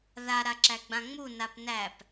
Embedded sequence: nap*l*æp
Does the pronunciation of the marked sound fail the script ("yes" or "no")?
yes